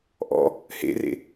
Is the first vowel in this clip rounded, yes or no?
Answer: yes